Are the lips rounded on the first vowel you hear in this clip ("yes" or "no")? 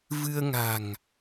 no